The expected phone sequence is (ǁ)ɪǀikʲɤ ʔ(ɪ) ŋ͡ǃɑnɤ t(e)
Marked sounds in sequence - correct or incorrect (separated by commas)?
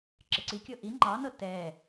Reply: correct, incorrect, incorrect